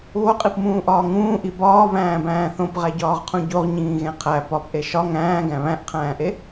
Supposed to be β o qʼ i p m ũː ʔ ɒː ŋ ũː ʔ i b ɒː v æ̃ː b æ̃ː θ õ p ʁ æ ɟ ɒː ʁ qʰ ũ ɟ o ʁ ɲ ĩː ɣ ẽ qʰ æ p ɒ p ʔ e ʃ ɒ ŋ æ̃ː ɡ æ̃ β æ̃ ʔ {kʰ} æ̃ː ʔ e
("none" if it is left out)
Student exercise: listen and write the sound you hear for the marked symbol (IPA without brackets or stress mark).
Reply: qʰ